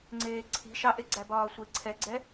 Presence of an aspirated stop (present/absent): present